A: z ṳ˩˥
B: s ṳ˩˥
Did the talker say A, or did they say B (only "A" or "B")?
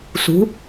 B